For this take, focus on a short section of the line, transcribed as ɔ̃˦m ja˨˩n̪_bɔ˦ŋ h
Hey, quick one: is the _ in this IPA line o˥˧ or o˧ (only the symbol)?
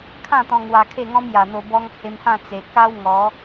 o˧